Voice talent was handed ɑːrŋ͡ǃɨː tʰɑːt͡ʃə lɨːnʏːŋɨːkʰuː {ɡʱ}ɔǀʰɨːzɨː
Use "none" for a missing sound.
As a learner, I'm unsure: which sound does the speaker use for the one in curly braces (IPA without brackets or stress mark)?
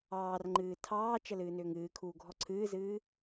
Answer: ɡʱ